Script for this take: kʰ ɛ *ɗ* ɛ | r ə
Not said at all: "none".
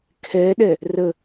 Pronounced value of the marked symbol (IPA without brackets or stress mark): ɗ